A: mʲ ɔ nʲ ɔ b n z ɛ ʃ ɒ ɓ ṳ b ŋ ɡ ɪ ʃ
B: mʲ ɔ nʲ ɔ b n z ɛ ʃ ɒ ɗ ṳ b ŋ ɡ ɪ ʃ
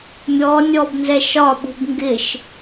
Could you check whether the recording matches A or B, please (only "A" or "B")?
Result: A